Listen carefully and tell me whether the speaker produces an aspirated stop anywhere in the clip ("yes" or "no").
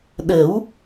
no